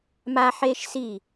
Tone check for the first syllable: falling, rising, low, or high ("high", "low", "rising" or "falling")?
high